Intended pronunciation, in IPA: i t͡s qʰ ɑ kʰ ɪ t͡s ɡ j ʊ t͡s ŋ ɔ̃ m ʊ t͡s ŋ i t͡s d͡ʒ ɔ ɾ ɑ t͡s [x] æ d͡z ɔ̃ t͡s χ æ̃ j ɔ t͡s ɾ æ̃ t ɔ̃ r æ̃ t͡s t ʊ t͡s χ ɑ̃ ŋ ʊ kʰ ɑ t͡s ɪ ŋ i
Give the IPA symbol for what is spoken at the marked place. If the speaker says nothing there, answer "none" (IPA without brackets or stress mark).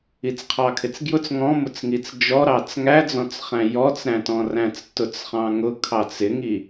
ŋ